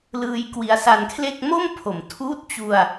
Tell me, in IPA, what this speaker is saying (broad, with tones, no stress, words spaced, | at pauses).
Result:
lɯː˧jkwi˧a̯sa˧nkʰle˥˩k̚ mo˥˩mpʰo˩˦mtʰuː˦˥t̚t͡ɕu˧a̯